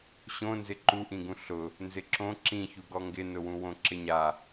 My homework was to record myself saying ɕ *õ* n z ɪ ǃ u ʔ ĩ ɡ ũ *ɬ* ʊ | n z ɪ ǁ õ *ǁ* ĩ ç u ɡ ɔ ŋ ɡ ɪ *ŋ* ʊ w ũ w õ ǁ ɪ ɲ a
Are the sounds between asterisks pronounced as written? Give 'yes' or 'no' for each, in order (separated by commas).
yes, yes, yes, no